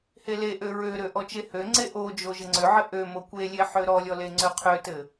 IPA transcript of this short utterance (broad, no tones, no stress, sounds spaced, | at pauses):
h e l e ʔ ø ɹ ø ɾ ø ʔ ɔ t͡ʃ e h ø ŋ͡ǀ e ʔ o d͡ʒ o ʒ ɘ ŋ͡ǀ ø ʕ ɘ ʔ ø m o kʷ e lʲ e ħ ø ɾ ɔ lʲ ɔ l e ŋ͡ǀ ø qʰ ø t ɘ